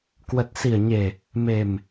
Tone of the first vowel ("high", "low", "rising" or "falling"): low